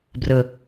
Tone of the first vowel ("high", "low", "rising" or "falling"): low